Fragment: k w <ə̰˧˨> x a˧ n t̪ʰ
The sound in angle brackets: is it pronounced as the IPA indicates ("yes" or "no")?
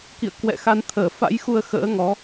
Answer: no